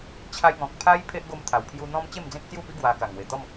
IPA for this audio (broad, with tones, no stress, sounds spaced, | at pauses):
t͡ɕʰ a˧ j ŋ ɔ̃˨ k̚ pʰ a˦ j pʰ e˦ ʔ ɡ o˧ m t̪ʰ a˨˩ w pʰ j u˧ n̪ ɔ̃˧ m t͡ɕ e˥˧ m d͡z ẽ˦ k̚ t͡s j u˥˧ p i˦ ɡ w a˧ k a˨˩ ŋ w e˨˩ t̪ ɔ˥˧ m